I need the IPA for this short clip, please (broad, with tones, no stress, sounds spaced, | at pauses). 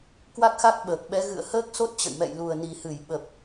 k w a˦˥ k̚ x a˦˥ k̚ ɓ əː˨˩ k̚ ɓ ɛ˨˦ ɣ ɨ̰˧˨ ə̯ h əː˦˥ k̚ s o˦˥ t̚ t͡ɕ ə̰˧˨ j m ɛ̰˧˨ j l u˨˩ ə̯ n i˨˩ h ɨ˧˩ j ɓ ə˨˩ p̚